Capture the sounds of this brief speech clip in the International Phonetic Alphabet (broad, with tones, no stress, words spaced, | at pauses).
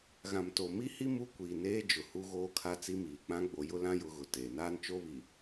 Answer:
ɣã˨mto˨mi˦hi˦ mu˦kʷiː˨neː˦ d͡ʒʊ˨hu˦ɣoː˦ kʰa˦t͡si˦miː˨ k͡pã˦ɡ͡bo˨ jʊ˦lã˦ jʊ˦ɣʊ˨teː˨ naː˦nt͡ʃo˦βi˨